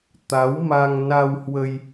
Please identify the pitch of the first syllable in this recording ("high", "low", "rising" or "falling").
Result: rising